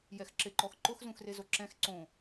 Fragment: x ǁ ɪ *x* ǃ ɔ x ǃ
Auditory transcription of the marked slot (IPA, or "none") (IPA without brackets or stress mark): none